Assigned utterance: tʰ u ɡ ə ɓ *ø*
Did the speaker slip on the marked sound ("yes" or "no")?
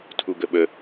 yes